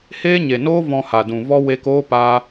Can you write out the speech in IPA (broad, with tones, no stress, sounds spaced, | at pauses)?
h eː˦ ɲ e˨ n oː˦ v ɔ̃˧ h a˨ d ũ˨ v ɔ˦ w eː˧ k oː˦ p a˦